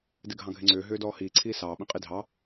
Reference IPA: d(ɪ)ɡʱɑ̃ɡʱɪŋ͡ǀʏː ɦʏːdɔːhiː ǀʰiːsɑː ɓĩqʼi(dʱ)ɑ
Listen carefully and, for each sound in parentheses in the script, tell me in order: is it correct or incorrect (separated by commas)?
correct, correct